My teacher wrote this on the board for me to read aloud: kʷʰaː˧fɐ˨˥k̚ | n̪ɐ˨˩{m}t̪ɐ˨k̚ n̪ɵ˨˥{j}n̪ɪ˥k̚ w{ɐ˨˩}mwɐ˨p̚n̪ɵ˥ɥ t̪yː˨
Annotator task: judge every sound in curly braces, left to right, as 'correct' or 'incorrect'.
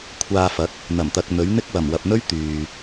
correct, incorrect, correct

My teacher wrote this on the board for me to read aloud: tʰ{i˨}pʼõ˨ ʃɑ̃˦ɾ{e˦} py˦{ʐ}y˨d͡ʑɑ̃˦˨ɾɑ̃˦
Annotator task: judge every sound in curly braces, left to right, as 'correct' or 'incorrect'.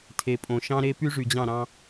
incorrect, correct, correct

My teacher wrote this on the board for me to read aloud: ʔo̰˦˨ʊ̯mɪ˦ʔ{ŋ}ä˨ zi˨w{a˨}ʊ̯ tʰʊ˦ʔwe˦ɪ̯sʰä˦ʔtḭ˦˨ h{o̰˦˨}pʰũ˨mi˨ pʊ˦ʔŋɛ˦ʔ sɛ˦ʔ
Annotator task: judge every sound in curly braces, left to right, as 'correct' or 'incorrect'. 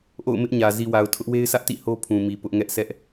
incorrect, correct, incorrect

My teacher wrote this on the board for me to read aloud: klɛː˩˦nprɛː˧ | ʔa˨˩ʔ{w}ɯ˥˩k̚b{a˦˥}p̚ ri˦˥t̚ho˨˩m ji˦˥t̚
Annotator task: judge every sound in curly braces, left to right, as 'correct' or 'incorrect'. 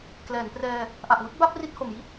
correct, correct

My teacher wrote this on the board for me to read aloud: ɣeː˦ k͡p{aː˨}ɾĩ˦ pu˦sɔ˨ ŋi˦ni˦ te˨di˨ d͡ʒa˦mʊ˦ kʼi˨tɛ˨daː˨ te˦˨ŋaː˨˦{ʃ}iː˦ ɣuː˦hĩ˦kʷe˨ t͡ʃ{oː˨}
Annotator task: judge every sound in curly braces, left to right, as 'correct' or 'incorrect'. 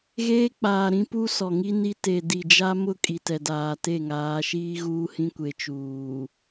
correct, correct, incorrect

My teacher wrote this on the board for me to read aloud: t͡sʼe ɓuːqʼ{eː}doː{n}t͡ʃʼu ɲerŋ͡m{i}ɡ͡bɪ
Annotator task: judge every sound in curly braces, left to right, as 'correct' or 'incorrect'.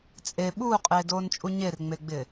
correct, correct, incorrect

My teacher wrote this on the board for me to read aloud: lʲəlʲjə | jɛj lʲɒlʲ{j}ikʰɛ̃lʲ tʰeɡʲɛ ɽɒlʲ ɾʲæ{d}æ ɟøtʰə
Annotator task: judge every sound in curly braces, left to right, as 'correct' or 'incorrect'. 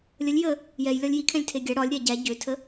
correct, incorrect

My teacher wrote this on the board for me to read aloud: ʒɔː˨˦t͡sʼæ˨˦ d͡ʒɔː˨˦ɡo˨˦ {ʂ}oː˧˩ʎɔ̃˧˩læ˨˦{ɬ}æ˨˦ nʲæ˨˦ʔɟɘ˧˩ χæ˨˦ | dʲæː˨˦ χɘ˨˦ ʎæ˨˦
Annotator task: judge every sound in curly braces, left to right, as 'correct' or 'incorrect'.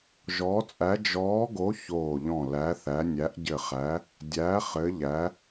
incorrect, incorrect

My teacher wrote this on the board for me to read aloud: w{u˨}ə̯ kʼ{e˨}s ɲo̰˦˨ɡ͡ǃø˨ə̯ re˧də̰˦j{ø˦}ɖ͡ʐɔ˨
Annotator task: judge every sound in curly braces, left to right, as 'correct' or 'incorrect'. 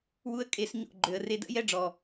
incorrect, incorrect, incorrect

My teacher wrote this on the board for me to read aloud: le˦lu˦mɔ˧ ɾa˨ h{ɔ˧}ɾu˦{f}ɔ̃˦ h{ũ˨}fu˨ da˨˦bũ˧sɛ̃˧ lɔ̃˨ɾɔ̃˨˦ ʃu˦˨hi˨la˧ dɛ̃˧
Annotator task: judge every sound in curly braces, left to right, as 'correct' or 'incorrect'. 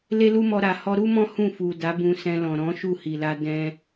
correct, incorrect, incorrect

